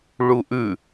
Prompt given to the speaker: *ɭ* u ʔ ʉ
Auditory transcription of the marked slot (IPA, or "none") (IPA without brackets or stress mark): ɭ